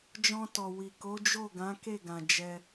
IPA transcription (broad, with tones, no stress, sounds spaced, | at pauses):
d͡ʒ ɔ̃˧ t ɔ˨ w i˨ k o˨˦ d͡ʒ o˦˨ ɡ ã˨˦ k e˦˨ ɡ ã˨ d͡ʒ ɛ˧